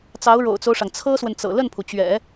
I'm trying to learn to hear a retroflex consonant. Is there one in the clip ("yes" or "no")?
yes